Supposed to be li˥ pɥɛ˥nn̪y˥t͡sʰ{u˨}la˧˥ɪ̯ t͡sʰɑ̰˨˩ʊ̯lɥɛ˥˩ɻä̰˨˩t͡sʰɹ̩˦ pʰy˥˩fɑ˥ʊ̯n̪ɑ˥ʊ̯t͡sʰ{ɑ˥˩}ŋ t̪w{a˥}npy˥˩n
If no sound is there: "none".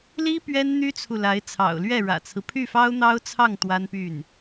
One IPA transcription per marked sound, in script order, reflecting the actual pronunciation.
u˨, ɑ˥˩, a˥

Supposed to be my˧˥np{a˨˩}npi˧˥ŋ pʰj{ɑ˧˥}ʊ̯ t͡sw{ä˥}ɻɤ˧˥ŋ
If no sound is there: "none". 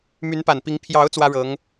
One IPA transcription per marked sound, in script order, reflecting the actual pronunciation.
a˨˩, ɑ˧˥, ä˥

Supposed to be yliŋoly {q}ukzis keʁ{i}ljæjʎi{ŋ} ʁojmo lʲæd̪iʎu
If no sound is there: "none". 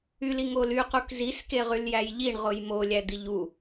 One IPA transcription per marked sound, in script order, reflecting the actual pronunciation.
q, y, ɳ

